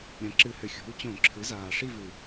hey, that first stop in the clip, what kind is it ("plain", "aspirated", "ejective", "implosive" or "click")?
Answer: click